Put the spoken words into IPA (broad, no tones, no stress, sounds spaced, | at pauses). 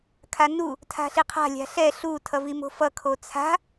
kʰ a n u | tʰ a̤ ɬ i qʰ a̤ lʲ a̤ ɬ ɛ ɬ u tʰ ʌ v i m o̤ f ʌ kʰ o t͡sʰ a̤